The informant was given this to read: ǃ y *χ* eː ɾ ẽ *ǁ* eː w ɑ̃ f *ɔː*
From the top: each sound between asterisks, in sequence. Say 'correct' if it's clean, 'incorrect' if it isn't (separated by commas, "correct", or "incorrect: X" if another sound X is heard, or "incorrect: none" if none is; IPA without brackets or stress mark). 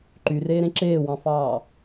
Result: incorrect: r, correct, incorrect: ɑː